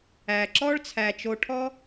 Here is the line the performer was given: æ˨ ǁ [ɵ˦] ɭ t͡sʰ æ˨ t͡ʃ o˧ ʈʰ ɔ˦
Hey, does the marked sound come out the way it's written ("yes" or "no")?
no